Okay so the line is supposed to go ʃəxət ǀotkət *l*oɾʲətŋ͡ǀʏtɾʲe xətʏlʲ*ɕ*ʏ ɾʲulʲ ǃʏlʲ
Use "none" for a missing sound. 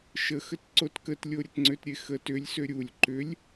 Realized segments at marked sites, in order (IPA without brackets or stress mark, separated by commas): lʲ, s